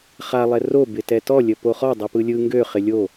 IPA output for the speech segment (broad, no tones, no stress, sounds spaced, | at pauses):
χ a lˠ ɛ r o b ɪ t ɛ t ɔ lʲ ə p o χ ɔ dˤ ɯ p ɯ lʲ ɯ ŋ ɡ ø χ ɪ lʲ o